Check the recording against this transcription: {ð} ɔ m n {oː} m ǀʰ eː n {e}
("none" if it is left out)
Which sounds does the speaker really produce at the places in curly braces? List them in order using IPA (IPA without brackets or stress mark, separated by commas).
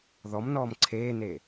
ð, ɔː, e